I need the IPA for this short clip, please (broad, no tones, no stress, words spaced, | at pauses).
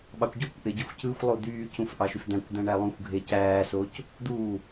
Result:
ɓɑkʷɟokʷʔe ɟyxʷcɯxʷlˠo d̪yːcũf ʔɑʃyfd̪æ̃kʷd̪æ̃ ɳælˠũxʷɡʱe cæːsoːc | d̪uː